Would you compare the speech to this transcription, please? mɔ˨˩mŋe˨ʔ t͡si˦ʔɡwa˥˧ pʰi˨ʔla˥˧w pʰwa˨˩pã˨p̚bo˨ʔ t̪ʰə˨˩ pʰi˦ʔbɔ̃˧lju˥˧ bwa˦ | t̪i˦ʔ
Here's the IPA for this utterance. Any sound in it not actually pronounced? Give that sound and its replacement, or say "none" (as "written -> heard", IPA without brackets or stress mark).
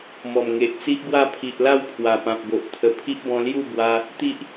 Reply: none